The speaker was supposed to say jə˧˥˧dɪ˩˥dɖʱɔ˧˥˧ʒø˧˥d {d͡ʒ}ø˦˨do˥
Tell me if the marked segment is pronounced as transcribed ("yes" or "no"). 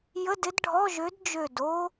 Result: yes